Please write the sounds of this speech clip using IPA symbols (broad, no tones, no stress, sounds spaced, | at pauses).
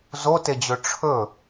z o t e d͡ʑ ɵ ʈ͡ʂʰ ɵ